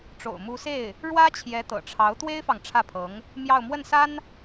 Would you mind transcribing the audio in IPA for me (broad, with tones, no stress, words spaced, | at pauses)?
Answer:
ʈ͡ʂo̰˨˩ʊ̯ mu˧˥se˥˩ɪ̯ | ɻwä˥ t͡ɕʰjɛ˧˥t̪ɤ̰˨˩ʈ͡ʂʰɑ˧˥ʊ̯ t̪we˥ɪ̯fɑ˨ŋ ʈ͡ʂʰä˥˩pʰɤ˧˥ŋ | mjɑ˥˧ʊ̯ mwə˥˩nsa˥n